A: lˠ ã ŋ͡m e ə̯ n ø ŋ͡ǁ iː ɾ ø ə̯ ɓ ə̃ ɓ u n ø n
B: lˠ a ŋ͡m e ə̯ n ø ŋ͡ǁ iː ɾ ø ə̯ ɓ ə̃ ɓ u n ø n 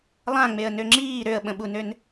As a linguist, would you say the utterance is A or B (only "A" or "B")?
A